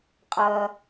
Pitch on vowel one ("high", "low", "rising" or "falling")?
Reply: low